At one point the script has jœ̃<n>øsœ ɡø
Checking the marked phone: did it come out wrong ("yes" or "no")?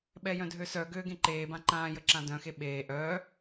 yes